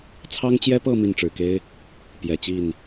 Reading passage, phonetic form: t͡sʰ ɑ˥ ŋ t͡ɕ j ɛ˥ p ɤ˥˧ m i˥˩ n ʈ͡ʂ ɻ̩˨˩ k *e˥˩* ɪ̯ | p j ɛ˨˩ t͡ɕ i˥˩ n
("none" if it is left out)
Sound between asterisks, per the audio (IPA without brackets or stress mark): e˥